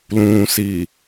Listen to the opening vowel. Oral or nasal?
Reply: nasal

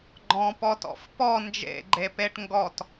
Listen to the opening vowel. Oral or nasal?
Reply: nasal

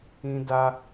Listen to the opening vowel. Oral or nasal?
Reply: nasal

